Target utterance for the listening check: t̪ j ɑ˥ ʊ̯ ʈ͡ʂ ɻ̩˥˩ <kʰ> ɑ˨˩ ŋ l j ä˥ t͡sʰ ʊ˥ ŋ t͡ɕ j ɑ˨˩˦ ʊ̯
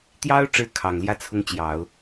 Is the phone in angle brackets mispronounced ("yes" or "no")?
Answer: no